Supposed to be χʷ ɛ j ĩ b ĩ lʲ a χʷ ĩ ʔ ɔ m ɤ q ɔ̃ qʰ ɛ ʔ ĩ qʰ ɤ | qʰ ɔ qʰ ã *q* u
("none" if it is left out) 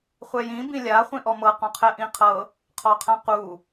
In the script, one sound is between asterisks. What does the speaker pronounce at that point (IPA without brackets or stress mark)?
q